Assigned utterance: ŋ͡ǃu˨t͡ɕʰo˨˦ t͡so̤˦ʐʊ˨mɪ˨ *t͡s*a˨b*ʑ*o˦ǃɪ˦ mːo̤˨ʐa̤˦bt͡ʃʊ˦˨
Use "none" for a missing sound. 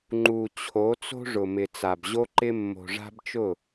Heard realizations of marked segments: t͡s, ʑ

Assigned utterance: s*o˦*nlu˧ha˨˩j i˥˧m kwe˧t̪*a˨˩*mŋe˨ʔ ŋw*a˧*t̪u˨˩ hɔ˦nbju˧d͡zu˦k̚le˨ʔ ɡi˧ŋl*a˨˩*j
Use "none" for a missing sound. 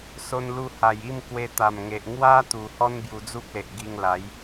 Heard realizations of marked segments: o˧, a˨˩, a˦, a˨˦

